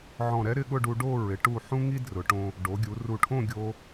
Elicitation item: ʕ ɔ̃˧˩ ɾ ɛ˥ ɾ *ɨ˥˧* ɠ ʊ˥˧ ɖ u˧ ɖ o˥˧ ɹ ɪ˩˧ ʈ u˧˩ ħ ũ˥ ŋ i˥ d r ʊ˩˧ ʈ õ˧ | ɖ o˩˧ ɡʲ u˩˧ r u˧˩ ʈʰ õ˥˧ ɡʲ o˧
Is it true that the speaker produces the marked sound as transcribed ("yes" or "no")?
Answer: no